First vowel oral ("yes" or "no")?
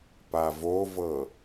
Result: yes